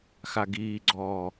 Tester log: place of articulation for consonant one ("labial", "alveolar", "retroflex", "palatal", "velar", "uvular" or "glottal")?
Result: velar